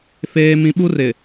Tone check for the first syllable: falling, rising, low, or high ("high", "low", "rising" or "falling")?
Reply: high